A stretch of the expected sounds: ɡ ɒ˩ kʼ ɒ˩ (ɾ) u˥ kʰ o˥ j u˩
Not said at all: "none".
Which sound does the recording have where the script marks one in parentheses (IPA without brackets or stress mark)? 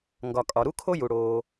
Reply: ɾ